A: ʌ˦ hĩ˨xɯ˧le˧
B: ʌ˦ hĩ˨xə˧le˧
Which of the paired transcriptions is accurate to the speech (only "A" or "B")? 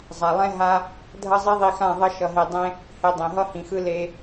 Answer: A